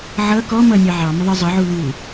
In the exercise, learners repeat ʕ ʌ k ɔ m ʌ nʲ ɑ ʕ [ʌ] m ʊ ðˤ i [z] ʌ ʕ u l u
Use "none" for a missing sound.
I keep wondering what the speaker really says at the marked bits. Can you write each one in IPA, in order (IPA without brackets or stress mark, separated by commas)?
ɑ, zˤ